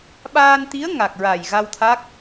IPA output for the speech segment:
ɓ aː˧ n t̪ i˧˥ ə̯ ŋ a˨˩ k̚ ɹ a˨˩ j ɣ a˧ w t̪ʰ a˦˥ k̚

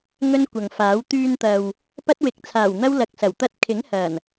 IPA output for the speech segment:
ŋ ɵ˥ n kʷ ɐ˨ ŋ f aː˨˥ w t̪ yː˧ n t̪ ɐ˨ w | p ɐ˥ t̚ w ɪ˨˥ k̚ t͡sʰ aː˨˩ w n̪ ɐ˥ w l ɐ˧ k̚ s ɐ˨˩ w t̪ ɐ˥ t̚ kʰ ɪ˨˥ ŋ h ɐ˨˩ n

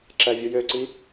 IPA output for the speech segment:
ǁ æ vʲ u j ø ǀ i

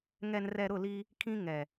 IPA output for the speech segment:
ŋ ɛ˨ n r ɛ˨ ɾ ʊ˦˨ l i˦ | kʰ ĩ˦ ŋ ɛ˨

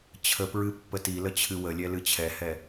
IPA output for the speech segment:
t͡ɕʰ ə p ɹ ɨ pː ə t i l ə t͡ɕʰ ɨ w ə lʲ ɛ l ɨ t͡ɕʰ ɛ h ɛ

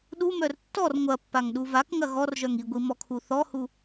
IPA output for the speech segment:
ɗ u m œ r tː ɔ r ŋʷ ɐ pː a ŋ ɗ u v a k ŋ ɐ ɣ ɔ r ʒ œ ŋ i ɡʷ i m ɔ kʰ u θ ɔ h u

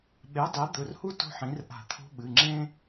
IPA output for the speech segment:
ɓ e˩˥ dˤ e˩˥ d̪ ɵ˩˧˩ r h u˦ t o̤˦ ħ ĩ˩˥ r ʔ a̤˧˩˧ t̪ʰ o̤˦ ɓ ɨ˩˧˩ ŋ͡ǁ ẽ˦

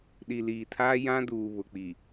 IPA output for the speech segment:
ɗ i˨ l iː˨ tʰ aː˦ j ã˦ d uː˨ β ʊ˨ k͡p i˨

